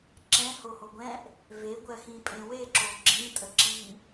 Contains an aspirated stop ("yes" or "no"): no